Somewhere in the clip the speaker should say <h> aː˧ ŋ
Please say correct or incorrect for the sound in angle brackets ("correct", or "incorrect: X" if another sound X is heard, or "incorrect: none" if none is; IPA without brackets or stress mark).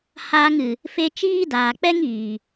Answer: correct